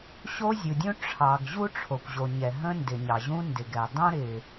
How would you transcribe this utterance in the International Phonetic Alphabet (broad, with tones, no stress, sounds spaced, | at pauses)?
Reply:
ɕ o˥ zʲ u˩ dʲ ũ˥ ʈ͡ʂʰ ɑ˩ ɡ ʑ u˥ ʈ͡ʂʰ o˩ kʷ ʑ o˩ ɲ ɛ˩ ɦ ə̃˥ n d ɪ˩ ɲ ɑ˩ ʑ ũ˥ n d ɪ˩ ɡ ɛ˩ dˤ õ˥ ɾ ɪ˩